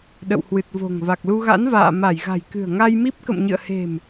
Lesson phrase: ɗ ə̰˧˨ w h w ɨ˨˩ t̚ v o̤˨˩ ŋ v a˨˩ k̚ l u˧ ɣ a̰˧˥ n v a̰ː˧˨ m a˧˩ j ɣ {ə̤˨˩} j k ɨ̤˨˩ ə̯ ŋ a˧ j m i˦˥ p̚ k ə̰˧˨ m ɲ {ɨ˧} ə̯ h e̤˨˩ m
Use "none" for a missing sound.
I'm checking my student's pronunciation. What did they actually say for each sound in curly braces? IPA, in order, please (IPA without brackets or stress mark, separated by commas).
a̤˨˩, ɨ̰˧˨